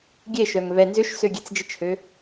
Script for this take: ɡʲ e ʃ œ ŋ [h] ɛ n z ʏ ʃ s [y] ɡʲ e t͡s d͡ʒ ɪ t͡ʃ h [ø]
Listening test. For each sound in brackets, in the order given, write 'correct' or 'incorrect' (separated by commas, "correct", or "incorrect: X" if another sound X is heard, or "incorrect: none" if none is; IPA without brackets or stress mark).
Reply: incorrect: β, incorrect: ø, correct